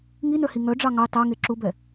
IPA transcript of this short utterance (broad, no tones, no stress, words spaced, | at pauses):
ŋinœhi ŋœɖ͡ʐɑ ŋɑ tɑ ŋeǁubɛ